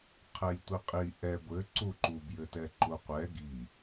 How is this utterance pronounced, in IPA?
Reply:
qʰ ɛ j tʷ i qʼ i ʔ ɛ ɡʷ ɘ ǀ u ǃ u b j ɘ t ɛ ǃ u qʷ ɛ ɡ i

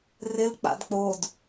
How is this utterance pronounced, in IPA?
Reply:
r ɪ l k͡p a̰ d k͡p o d

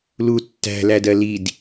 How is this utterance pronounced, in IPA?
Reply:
l u tː æ̤ l æ d ɜ l i d

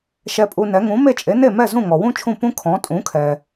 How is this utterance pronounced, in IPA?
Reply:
ʃ ɛ˧ pʼ u˧ n ɛ˩˥ ŋ ũ˩˥ m e˥˩ t͡ʃʼ e˩˥ n e˥˩ m ɛ˥˩ z ũ˥˩ ŋ ɔ˩ w ũ˥ t͡ʃʰ ũ˥˩ p ũ˥ kʰ ɔ̃˩˥ tʼ ũ˩˥ kʰ ɛ˩

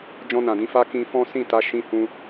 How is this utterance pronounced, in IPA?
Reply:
d͡ʒ ɔ̃˧ n ã˨ d ĩ˨˦ f a˦ k ĩ˧ f ɔ̃˦ s ĩ˦˨ t a˨˦ ʃ ĩ˧ h ũ˧

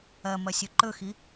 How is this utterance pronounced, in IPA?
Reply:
ɐ m ɐ sʲ ɵ ǃ ɵ x i

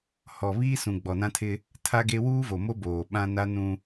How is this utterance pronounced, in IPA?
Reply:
h ɔ˨ β iː˦ s ũ˨ ɡ͡b ɔ˨ n ã˦ tʰ ɪ˦ | tʰ a˦ ɡ e˦ w uː˦ v o˨ m o˦ b oː˨ ɓ ã˦ n a˦ n ũ˦

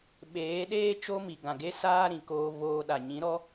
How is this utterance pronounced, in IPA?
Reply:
ɓ eː˨˦ ɗ eː˦ t͡ʃ o˦ m i˨ ɡ ã˨ ɡ e˦ s aː˦ ɾ ĩ˨ k oː˧ v oː˧ ɗ a˨ ɲ ĩ˨˦ ɾ ɔ˦

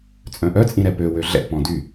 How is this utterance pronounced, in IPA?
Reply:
t͡sʼ œ̃ ʔ œ t͡sʼ ĩ ɾ ɛ p ø w ø ɮ ɛ̰ p ɔ̃ d y

